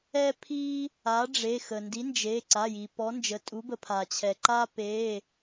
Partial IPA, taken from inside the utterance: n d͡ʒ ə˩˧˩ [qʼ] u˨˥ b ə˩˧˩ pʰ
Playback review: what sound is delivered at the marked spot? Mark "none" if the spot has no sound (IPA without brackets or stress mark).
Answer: tʼ